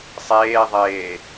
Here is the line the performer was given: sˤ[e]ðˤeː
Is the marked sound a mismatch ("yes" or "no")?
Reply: yes